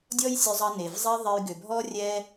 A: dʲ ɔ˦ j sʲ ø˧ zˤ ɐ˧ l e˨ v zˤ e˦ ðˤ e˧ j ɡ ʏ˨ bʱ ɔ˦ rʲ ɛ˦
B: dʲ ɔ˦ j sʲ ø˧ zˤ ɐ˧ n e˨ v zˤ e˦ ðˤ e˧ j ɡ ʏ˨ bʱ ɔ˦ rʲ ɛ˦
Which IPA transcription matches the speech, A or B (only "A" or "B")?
B